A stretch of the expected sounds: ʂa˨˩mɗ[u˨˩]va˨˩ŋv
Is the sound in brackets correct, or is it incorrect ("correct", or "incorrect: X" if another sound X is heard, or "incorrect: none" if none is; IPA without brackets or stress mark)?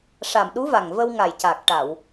incorrect: u˧˥